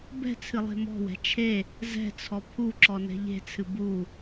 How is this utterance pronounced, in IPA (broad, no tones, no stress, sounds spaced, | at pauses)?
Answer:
b ɛ̤ t͡sʰ ɨ lˠ e̤ m ɔ̤ w ɛ̤ t͡ʃʰ e | z ɛ̤ t͡sʰ ɔ pʰ u ǁ ɔ n ɛ̤ ʎ e̤ t͡sʰ ɨ b u